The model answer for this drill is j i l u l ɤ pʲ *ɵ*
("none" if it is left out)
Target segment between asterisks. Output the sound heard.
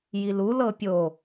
o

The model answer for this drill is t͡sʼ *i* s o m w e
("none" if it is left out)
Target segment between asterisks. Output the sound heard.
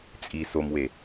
i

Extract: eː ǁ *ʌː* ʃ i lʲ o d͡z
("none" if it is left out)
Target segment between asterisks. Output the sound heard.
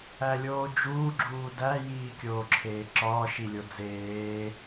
ɒː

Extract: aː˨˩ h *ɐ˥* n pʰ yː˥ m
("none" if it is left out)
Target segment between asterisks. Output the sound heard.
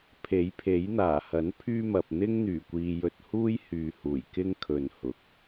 ɐ˨˥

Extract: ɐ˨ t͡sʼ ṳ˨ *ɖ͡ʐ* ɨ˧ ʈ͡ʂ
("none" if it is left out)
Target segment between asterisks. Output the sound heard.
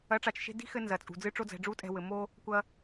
d͡z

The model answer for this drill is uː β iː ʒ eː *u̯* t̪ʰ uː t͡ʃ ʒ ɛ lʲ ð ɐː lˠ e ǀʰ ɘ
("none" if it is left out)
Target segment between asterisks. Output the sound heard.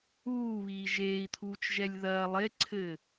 i̯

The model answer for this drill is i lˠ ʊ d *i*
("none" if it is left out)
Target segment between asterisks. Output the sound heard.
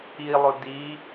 i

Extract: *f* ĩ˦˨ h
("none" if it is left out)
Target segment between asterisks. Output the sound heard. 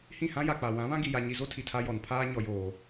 h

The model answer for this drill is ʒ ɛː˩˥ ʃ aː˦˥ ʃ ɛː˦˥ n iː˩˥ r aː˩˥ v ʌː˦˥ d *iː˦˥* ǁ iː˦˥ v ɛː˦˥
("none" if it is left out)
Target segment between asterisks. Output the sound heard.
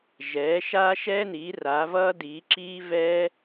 iː˩˥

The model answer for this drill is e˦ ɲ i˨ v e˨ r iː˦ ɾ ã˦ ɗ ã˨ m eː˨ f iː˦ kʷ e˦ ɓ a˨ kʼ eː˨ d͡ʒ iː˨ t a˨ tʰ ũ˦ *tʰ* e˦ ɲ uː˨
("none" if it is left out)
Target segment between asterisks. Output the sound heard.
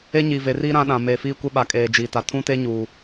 t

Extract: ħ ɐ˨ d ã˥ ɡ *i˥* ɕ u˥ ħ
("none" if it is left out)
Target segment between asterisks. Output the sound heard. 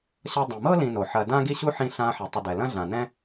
i˥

